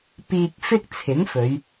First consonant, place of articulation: labial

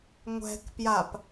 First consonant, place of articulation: velar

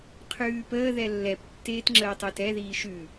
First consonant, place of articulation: uvular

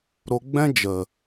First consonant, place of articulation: alveolar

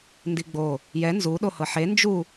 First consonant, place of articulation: alveolar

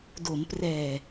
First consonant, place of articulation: alveolar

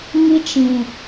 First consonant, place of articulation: velar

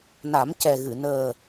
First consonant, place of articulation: alveolar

